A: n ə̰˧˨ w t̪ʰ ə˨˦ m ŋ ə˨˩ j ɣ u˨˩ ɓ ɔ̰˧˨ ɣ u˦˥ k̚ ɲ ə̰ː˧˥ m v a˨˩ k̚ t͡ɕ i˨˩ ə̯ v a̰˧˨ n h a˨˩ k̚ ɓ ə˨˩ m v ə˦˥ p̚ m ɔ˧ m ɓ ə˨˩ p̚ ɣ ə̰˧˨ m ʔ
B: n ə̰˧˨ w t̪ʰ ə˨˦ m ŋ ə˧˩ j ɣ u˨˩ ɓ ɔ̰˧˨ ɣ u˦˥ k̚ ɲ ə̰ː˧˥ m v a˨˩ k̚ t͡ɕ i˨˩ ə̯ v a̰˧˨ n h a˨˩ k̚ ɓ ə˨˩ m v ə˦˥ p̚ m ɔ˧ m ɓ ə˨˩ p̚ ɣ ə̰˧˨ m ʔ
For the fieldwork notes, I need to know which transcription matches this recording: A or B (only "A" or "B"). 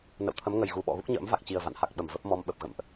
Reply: A